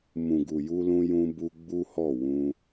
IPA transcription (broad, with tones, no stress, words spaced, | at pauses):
mũ˨ɡu˨ ju˧lũ˧jũ˧ bu˧ ɡ͡bu˦hɔ˦˨ wũ˧